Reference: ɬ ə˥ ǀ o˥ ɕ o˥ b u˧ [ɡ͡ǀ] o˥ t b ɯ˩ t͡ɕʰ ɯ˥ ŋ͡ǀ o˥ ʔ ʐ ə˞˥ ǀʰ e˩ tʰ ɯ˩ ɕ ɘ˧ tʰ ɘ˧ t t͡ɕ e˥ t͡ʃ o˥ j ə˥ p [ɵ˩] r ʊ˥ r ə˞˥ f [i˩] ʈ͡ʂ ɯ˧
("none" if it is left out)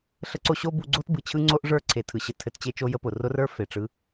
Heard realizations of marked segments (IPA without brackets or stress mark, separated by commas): ɡ͡ǀ, ʊ˩, e˩